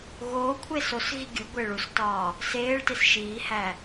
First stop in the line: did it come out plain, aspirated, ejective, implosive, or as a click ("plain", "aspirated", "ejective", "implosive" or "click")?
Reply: aspirated